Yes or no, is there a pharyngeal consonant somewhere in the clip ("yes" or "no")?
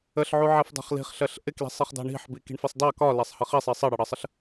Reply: yes